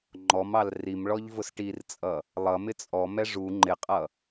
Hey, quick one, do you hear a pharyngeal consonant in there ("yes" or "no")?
no